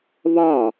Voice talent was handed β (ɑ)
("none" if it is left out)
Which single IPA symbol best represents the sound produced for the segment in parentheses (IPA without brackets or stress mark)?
ɒ